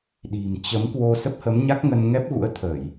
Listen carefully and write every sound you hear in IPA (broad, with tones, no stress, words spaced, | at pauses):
ɗi̤˨˩mt͡ɕə˨˦mkwo˧ sə˦˥p̚hə˨˦mɲa˦˥k̚ŋə˧n ŋɛ˦˥p̚ɣṵ˧˥ə̯ t̪ʰə˧˩˨j